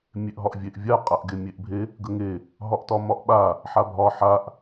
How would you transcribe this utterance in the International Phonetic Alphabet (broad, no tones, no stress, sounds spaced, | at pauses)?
mʲ e ʔ ɦ ɒ ʔ vʲ e ʔ vʲ a qʼ a ʔ ɡ e mʲ e ʔ bʱ e | ɡ ə ŋ e | ɦ ɒ ʔ t ɒ m ɒ ʔ ɓ a | ħ a bʱ ɒ ħ a ʔ